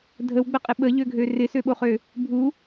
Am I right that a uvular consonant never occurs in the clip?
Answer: no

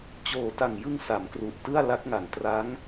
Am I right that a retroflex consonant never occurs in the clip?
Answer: yes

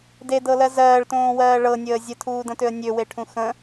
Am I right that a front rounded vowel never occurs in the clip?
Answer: no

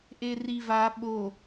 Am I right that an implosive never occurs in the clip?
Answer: no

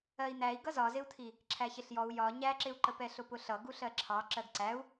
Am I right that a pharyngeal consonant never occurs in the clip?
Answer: yes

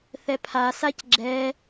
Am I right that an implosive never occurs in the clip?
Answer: yes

